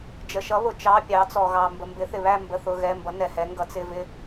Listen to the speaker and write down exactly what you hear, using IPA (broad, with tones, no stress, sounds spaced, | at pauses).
d͡ʒ ə˨ ʃ ʌ˨˥ β ʊ˨ t͡ʃ ɑ˧˥˧ pʲ ɑ˨˥ t͡s ɔ˨ ɣ ɑ˨ m b ə˨ m b ɪ˨˥ θ ɪ˨ β æ˥˧ m b ə˧˥˧ θ ʊ˧˥˧ ɣ ɛ˧˥˧ m b ʌ˨˥ n ɛ˨ h ɛ˨˥ ŋ ɡ ʌ˨˥ t͡s ɪ˧˥˧ v ɪ˥˧